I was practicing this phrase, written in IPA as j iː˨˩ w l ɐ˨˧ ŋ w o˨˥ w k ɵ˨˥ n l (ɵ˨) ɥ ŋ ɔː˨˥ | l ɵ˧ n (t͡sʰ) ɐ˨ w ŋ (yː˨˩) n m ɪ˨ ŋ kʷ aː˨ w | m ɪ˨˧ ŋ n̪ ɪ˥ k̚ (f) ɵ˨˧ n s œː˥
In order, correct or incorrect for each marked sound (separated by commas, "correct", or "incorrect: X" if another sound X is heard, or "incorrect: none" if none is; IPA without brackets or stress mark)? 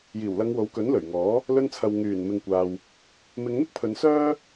incorrect: ɵ˨˩, correct, correct, incorrect: pʰ